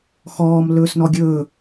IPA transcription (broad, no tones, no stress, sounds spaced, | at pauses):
x ɔː m l ɵː s n ɔ ɡʲ ɵː